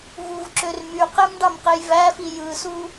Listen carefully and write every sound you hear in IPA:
vuvǁør myqemɖɑmqej væfi jɯsu

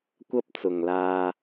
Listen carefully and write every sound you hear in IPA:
kʷɐ˥p̚t͡sʊ˨ŋlaː˧

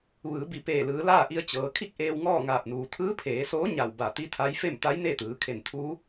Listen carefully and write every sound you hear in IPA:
ʋɯː˩˧bi˩ peː˧˩lɯː˩˧laː˥˨ʔi˧ə̯ t͡ɕɤː˩kʰi˥˨k̚ ʔeː˧wŋɔː˥˨ŋaː˧˩p̚nuː˩ t̪ʰɯː˧˥pʰeː˩˧soː˧˥ ɲa˧˩wba˧˩ t̪i˧˥t̪ʰa˧˥jfe˥˨m t̪a˧˥jne˥˨t̪ɯː˩˧ kʰe˧˩n t̪ʰuː˧˥

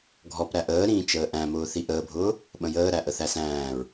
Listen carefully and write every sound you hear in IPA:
ɡʱɔpɾæ ʔəːɾĩː t͡ʃəːʔæ̃mʊː θiʔəːbʱʊː | ɓə̃jəːɾæ ʔəθæsæ̃ːɹ

